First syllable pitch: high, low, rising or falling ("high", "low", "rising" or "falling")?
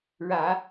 low